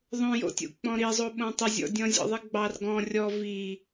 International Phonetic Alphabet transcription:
ðˤõjo̰tʲo̰ k͡pɔ̃ɾizˤo ɓõtˤɪzʲɔ̰ dʲɔ̃zʲɔ̰ðˤiɡ͡bɑr ɡɔ̃ rʲɔ vi

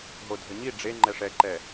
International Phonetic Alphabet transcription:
ɦodʱəɲi ɖ͡ʐe ŋ͡ǃɛʂɛ ǃɛ

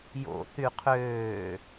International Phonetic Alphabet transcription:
jo̰ θyqʰøː

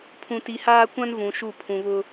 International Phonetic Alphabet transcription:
pʰũ˨ti˨haː˦kʷã˦n vũ˨ʃu˦˨ pʰũ˨βʊ˦

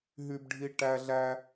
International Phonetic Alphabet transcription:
ɦy˦bɖʱi˦ ʈæ˦ɮæ˦

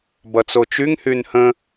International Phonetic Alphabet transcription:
bʌt͡sot͡ʃyŋhyn hə̃

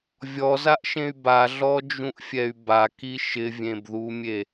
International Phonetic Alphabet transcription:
vʲɔzaʔʃẽy̯ baɮɔd͡ʒũʔfʲɛy̯ baki ʃɪvʲẽbðumʲe

